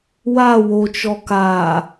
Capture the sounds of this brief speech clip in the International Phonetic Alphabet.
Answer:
w a w o t͡ʃ ɔ k aː

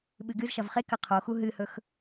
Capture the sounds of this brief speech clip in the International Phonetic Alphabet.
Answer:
ɓ ɨ ɡ ɨ z ʃ ɐ v χ e k ɐ qʰ o x u ɦ ɨ h ɵ x

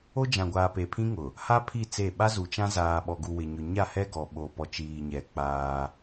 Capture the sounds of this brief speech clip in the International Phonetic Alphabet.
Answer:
o˦ d͡ʒ ã˨ ɡʷ aː˨ p e˨ pʰ ĩ˦ ŋ ʊ˨ | h a˦ pʰ i˦˨ t͡s e˦˨ ɓ a˦ z u˨ t͡ʃ ã˦ z aː˨ ɓ ɔ˨ ɡ u˨ w ɪ˨ ɲ ʊ˨ ɲ a˦˨ h ɛ˦ ɡ ɔ˨ ɓ o˨ p ɔ˨ t͡ʃ iː˨ ɲ ɛ˨ k͡p aː˦

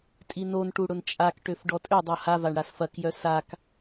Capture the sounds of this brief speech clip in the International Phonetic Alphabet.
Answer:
tʼ i n o n ʈ u ɽ ʊ n t͡ʃʼ a k ʈ ø f ɖ ɔ tʼ ø dˤ o h a v a ɳ ɽ a s f ɐ k j œ s a k

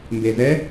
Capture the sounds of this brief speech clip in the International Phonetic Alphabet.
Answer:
m b e z ɛ

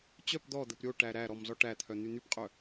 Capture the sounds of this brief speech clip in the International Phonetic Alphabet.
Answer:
t͡ɕ œ p d̪ ɔ d̪ ə p ɾʲ o ʈ æ ɾ æ ɾ ɔ m z ɔ ʈ æ t̪ʰ œ n̪ y n̪ y p qʼ œ

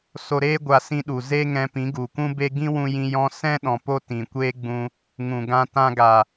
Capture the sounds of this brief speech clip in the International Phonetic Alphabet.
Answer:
s o˧ ɾ eː˦ ɡʷ a˧ s ĩ˧ ɗ u˨ z e˦ ŋ ɛ̃˧ p ĩ˨˦ ɡ u˨ kʷ ũ˦ b e˦ ɡ ĩ˦ w ũ˧ j ĩ˧ j ɔ̃˦ s ɛ̃˦ ɗ ɔ̃˨ p o˦ t ĩ˨ kʷ eː˦ ɡ͡b ũ˧ | ŋ ũ˨ ɡ ã˧ t ã˧ ɡ a˨

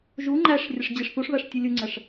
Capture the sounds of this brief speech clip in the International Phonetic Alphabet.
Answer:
ʒ u ŋ͡ǃ æ ʂ rʲ ə ʂ d͡ʑ i ʂ θ u ʂ β æ ʂ tʲ u lʲ u ŋ͡ǀ æ ʂ

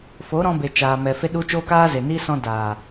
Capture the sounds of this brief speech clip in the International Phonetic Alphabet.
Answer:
f o˨˦ ɾ ɔ̃˧ b e˨ t͡ʃ aː˨ m ɛ˨ f e˧ ɗ u˧ t͡ʃ oː˦ k aː˦ z e˨ n iː˦ s ɔ̃˧ d aː˨

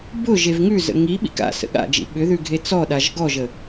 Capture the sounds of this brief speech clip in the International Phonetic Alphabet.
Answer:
b ʊ ʒ e v ŋ ʉ z ə̰ ŋ i ɓ ḭ k a̰ s ə̰ ɠ a̰ d͡ʒ ḭ ɓ ʏ ð ʉ ɡʱ e t͡s ɔ ɗ a ʒ ɡ ɔ ʒ ə

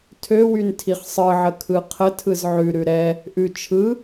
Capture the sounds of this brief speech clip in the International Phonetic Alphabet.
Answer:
tʰ ø w y n tʰ i χ sˤ ɯ ʕ ə kʰ ɯ qʰ ə tʰ ɯ z ʕ ʉ ɾ ʉ ɾ ɛ | ʔ ʉ t͡ʃʰ ɯ

